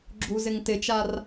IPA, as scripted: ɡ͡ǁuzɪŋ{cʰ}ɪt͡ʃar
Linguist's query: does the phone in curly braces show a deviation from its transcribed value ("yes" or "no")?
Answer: yes